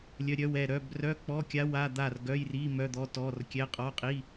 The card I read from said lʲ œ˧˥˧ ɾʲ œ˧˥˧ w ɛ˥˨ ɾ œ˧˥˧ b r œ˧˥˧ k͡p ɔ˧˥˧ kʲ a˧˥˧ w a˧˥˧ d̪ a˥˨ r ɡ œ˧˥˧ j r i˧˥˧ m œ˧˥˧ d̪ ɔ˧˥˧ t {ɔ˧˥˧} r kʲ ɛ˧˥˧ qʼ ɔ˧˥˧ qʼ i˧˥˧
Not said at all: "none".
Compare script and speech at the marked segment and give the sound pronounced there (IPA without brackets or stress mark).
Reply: ɔ˧˥˧